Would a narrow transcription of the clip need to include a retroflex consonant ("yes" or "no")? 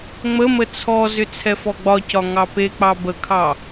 no